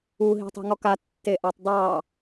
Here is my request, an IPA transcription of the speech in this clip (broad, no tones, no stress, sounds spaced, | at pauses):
u ɦ i̤ tˤ i̤ ŋ ɔ k a tː e ʔ ɑ tˤ dˤ ɑ